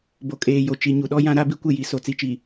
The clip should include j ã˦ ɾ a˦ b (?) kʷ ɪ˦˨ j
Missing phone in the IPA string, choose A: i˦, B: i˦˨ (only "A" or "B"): A